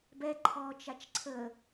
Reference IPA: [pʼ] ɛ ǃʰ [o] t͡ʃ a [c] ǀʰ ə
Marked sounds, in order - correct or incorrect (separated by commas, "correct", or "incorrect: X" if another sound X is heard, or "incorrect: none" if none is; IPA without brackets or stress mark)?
incorrect: b, incorrect: ɔ, incorrect: t͡ʃ